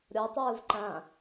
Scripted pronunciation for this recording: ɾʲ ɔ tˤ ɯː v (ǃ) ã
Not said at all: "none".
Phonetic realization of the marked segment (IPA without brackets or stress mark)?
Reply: ǃ